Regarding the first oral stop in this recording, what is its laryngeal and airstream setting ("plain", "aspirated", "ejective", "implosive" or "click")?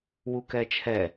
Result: plain